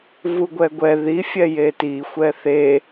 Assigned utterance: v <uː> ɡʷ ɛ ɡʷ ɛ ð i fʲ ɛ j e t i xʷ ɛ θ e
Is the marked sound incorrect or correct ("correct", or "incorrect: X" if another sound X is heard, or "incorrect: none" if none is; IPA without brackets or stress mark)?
incorrect: u